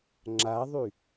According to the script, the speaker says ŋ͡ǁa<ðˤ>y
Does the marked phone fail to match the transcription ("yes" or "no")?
no